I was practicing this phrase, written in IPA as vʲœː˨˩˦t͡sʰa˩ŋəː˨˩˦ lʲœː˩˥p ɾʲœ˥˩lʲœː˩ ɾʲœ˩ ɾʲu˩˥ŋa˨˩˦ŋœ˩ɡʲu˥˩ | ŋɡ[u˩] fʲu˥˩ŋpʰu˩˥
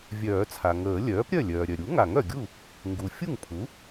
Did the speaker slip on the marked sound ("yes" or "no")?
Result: no